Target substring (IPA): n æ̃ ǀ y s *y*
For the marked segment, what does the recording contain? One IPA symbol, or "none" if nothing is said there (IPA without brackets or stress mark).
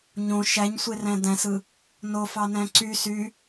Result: y